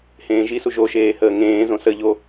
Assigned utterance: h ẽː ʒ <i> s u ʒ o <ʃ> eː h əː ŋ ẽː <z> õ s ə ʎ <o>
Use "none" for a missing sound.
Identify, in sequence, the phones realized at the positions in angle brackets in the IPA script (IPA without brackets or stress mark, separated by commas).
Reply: i, ʃ, z, o